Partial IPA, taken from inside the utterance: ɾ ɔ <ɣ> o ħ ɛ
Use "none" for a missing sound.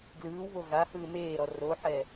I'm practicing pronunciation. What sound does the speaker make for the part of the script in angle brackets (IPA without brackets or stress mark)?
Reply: r